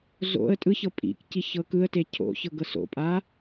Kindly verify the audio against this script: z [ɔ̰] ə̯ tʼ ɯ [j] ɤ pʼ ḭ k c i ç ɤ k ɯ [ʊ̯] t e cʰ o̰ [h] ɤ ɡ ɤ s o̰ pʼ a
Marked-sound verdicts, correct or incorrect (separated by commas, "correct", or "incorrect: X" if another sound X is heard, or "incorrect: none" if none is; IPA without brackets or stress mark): incorrect: o̰, incorrect: ç, incorrect: ə̯, incorrect: ç